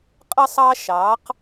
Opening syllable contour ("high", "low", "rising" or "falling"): high